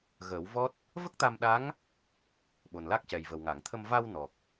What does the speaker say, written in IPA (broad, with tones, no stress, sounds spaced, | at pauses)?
ɣ əː˨˩˦ w v ɔ˦˥ t̚ | v ə˦˥ k̚ t̪ a˧ m ɗ a˧˥ ŋ | ɓ o˨˩ n l a˦˥ k̚ c ɛ˨˩ j v ə˨˩ w ŋ a˨˩˨ ŋ t̪ʰ ə˧ m v a˧ w n ɔ˨˩ k̚